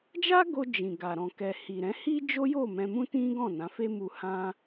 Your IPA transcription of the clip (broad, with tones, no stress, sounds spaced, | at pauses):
d͡ʒ a˦ ɡ o˧ d͡ʒ ĩ˨ ɡ a˨ ɾ ɔ̃˨ k ɛ˨ h i˨ ɾ ɛ̃˨˦ h i˦ d͡ʒ o˦ j o˦˨ m ɛ̃˧ m ũ˦ t ĩ˦ ɡ ɔ̃˦˨ n ã˨˦ f e˦ m u˧ h ã˦